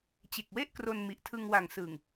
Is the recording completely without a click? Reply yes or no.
yes